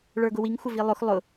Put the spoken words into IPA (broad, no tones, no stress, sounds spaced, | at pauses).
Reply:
ɭ ə˞ ɡ ʊ w i ŋ xʷ ə v i lˠ ʊ x lˠ ʊ